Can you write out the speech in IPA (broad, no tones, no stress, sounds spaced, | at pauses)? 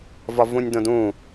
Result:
v ɒ v ũ nʲ d õ d ũ